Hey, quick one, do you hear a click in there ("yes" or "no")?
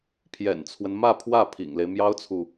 no